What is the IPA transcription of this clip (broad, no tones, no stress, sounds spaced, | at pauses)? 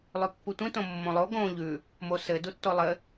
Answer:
lˠ ʉ pː u tʷ ĩ t õ mː õ lˠ o ɡ õ ʎ ʉ | m o s ɘ d u tː o lˠ ɘ